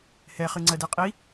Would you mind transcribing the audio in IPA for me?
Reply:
h ɛ χ ɨ ŋ͡ǀ ɜ d e qʼ i

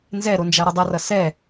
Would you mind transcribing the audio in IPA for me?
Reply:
n z ɛ ɾ o n d͡ʒ a ɾ ʌ dˤ ʌ r ʌ s ɛ

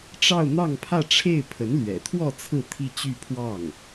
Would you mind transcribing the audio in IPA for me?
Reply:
ʈ͡ʂ ɑ˥˧ ʊ̯ n̪ ɑ˥˧ ŋ pʰ ä˥˧ ʈ͡ʂʰ e˥˩ ɪ̯ pʰ ə˧˥ n l ɥ ɛ̰˨˩ t̪ʰ w ɔ˥˧ t͡sʰ ɹ̩˥˧ t̪ʰ i˥˧ t͡ɕ y˥˧ pʰ w ɑ˥˩ ŋ

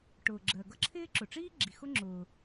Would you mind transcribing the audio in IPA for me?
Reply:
ʈ ʊː˩ ɡ͡ǁ ɜ˩ ɡ ʌ˥ ǁʰ ɪː˥ ǁ ʊ˩ ʈ͡ʂ iː˥ ɡ͡ǁ i˩ x ʊ˥ ŋ͡ǁ ʊː˩

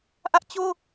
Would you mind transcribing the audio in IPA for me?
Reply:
ʔ ä˦ ʔ t͡ɕ o˦

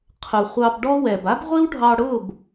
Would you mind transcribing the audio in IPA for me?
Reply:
qʰ ʊ˨ χʷ ɑ˧ b ɖ ɔ˦ w ɛ˨ b a˦ b ʁʷ i˦ w ɖʱ ɑ˧ ɽ ʊː˦˨ b

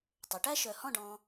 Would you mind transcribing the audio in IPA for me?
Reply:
tˤ ø˩˧ ʈ æ˥ ʃ œ˧˩ h ɔ̃˥˧ ɖ ɔ̃˧

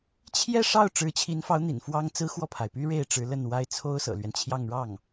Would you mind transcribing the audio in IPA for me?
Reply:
t͡ɕʰ j ɛ˥˧ ʂ ɑ˥˩ ʊ̯ ʈ͡ʂ ɻ̩˧˥ t͡ɕʰ i˧˥ n f ɑ˧˥ ʊ̯ n̪ ḭ˨˩ n f w ɑ˥ ŋ t͡s ɹ̩˥ x w ɔ˥˩ pʰ a˩ ɪ̯ p y˥ ɻ e˥˩ ɪ̯ ʈ͡ʂ ɻ̩˧˥ l ə˥˩ n w a˥ ɪ̯ t͡sʰ o˥ ʊ̯ s ɤ̰˨˩ l ɥ ɛ˦ n t͡ɕʰ j ɑ˥˧ ŋ ɻ ɑ˥˩ ŋ

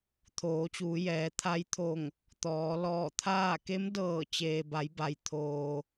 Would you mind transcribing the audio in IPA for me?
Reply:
t̪ʰ oː˩˧ t͡ɕ uː˩˧ j ɛː˩˧ t̪ʰ a˧˥ j t̪ʰ o˧˩ ŋ | t̪ ɔː˩˧ l ɔː˧˩ t̪ʰ aː˥˨ k e˧˥ m d ɤː˧˩ t͡ɕ eː˩ b a˩˧ j b a˩ j t̪ʰ oː˩

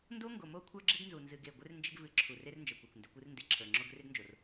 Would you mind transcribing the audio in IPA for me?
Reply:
n d o˦ ŋ ɡ o˨ m o˦ kʷʰ ə˞˦ ɡ͡ǁ ɪ˦ ɡ n z u˨ n z ɨ˨ ɡ e˦˨ ɡʷ ɪ˦ r n d͡ʒ ɪ˦ ɡ v ɨ˨˦ ǁʰ u˨ r e˦ r n d͡ʒ ə˞˨ kʷ o˨ kʷ n d ɪ˨˦ kʷ ɨ˦ r n d e˨ ǁʰ ə˞˨ ŋ͡ǁ o˦ ɡ r ɪ˦ ɡ n d͡ʒ o˨ r

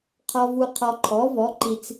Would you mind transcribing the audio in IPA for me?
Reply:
qʰ ɔ˨ v u˨ qʰ ɔ˨ ǃʰ ɔ˩˥ v ɔ˩˥ ǃ i˨ t͡s

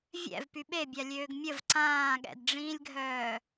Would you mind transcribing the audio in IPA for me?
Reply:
vʲ ɛ̰ v p y ɓ e bʲ a lʲ øː ɡ mʲ ə v ǀ ãː ɠ ɛ̰ d ɖ͡ʐ ĩː lʲ ɡʱ œː

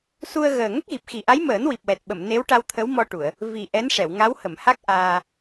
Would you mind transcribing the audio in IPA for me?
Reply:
s u˧ ə̯ ɣ əː˨˩ ŋ ə˦˥ k̚ ɣ i˨˩ p̚ x i˨˩ ʔ a˧˥ j m əː˨˩˦ n w i˨˩ p̚ w ɛ˨˩ t̚ ɓ ə˨˩˨ m n e˧˥ w ʈ a˧ w t̪ʰ ə˧˥ w m ɔ˧ ʈ u˨˩˨ ə̯ | v i˨˩ ʔ ɛ˧˥ n ʂ ɛ˨˩˨ w ŋ a˧˥ w h ə˨˩˨ m h a˦˥ k̚ ʔ aː˧

